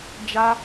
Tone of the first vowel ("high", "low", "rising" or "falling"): high